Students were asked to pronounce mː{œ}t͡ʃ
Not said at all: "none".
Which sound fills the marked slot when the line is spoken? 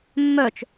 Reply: œ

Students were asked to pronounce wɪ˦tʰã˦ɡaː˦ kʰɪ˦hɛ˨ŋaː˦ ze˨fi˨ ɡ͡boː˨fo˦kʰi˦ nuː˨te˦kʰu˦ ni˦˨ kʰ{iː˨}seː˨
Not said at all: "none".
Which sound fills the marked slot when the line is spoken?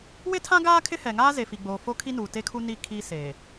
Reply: iː˦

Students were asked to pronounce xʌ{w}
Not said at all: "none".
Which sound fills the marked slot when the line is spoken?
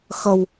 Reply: w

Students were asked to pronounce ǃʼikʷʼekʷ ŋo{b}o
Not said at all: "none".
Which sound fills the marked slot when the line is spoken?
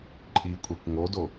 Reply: d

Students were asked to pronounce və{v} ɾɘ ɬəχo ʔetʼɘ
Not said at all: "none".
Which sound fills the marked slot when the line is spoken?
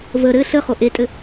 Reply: none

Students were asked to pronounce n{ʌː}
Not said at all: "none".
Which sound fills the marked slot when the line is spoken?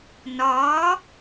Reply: ɒː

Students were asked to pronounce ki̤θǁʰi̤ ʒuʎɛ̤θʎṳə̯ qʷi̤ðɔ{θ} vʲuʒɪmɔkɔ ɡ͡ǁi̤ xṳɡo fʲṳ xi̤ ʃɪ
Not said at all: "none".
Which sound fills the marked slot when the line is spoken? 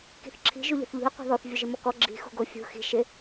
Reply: θ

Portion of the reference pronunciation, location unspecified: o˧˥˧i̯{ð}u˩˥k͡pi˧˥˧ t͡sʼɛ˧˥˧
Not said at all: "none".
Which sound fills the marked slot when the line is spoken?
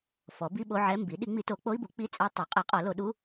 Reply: b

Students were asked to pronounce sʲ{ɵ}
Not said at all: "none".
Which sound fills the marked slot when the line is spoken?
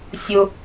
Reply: ʊ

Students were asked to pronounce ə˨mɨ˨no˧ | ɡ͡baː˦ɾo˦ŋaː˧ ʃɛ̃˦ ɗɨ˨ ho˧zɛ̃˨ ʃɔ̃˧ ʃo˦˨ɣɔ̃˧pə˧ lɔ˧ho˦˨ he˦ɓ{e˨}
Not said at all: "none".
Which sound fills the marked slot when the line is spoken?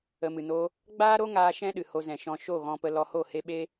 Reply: e˦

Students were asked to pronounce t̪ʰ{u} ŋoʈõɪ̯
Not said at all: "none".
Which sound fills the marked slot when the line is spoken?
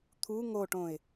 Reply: u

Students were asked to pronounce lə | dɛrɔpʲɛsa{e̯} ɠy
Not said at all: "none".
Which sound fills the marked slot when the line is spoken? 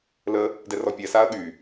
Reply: ɐ̯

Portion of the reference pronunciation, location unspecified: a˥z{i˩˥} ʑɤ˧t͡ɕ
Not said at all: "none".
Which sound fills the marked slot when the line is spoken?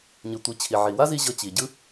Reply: i˧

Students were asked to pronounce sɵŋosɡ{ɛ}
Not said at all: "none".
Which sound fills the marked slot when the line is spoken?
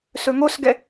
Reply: ɛ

